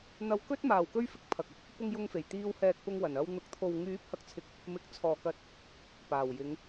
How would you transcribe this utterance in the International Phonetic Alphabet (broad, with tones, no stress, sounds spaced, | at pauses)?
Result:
n̪ ɐ˧ w k ɵ˥ t̚ m aː˨ w k ɵ˥ ɥ f ɪ˧ k̚ pʰ ɐ˨ k̚ ɐ˨ t̚ | p ʊ˧ ŋ j ʊ˧ ŋ f e˨˩ j t̪ iː˧ w h ɛː˧ k̚ p ʊ˧ ŋ w ɐ˨˩ n ɐ˧ w n̪ ʊ˨˥ k̚ t̪ʰ o˨ w ŋ yː˨˥ p̚ h ɐ˨ k̚ t͡sʰ ɪ˨ k̚ | m ɪ˨˥ k̚ t͡sʰ ɔː˨ k ɐ˧ t̚ | p aː˨˩ w j ɪ˨˧ ŋ